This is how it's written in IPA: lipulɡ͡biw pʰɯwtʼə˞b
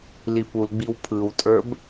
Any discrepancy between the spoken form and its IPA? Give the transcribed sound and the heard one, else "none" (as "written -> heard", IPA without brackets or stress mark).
none